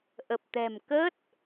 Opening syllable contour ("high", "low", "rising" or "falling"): low